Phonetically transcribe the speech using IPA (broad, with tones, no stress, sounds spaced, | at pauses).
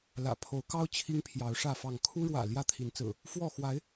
l ä̰˨˩ pʰ o˨˦ ʊ̯ k ɑ˦ ʊ̯ t͡ɕʰ i˦ ŋ pʰ j ɑ˨˦ ʊ̯ ʂ ä˥˨ f ɑ˥˨ ŋ kʰ u˦ ɻ w ä̰˨˩ l j ä˥˨ t̪ʰ i˨˦ n t͡s ɹ̩˨˩ | f w ɔ˥˨ x w a˨˦ ɪ̯